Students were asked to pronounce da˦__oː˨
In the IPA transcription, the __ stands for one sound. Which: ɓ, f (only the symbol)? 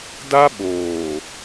ɓ